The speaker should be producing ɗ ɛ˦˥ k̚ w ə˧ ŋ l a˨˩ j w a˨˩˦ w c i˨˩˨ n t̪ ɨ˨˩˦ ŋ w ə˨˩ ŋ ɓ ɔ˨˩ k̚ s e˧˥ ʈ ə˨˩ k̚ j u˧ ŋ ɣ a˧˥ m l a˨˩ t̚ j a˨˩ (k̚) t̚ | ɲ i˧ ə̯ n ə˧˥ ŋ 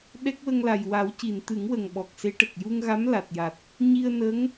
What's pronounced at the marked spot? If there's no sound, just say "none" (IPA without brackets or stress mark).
none